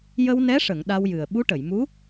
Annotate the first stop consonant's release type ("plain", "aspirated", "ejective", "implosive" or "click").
implosive